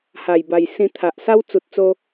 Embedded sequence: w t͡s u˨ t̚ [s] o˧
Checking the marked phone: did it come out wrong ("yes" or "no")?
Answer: yes